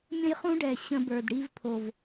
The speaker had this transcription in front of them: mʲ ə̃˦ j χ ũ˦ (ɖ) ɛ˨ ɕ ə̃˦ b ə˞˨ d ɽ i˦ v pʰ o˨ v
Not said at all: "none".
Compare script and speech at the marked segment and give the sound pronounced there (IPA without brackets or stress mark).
ɖ